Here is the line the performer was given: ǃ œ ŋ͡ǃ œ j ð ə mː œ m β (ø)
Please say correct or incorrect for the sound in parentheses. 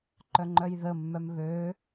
incorrect